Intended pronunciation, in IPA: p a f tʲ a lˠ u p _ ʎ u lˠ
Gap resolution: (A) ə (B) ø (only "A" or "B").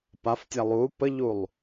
A